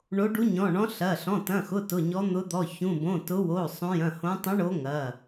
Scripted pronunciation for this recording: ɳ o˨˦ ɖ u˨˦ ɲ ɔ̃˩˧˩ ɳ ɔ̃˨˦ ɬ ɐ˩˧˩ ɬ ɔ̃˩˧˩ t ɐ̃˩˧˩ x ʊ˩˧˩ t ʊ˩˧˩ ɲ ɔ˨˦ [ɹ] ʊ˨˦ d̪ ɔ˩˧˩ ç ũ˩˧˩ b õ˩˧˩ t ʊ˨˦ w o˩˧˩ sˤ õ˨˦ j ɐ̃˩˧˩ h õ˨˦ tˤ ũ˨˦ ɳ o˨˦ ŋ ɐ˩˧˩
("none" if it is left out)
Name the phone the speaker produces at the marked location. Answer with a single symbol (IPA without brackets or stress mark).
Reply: n̪